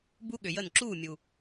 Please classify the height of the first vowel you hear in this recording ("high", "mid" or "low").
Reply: high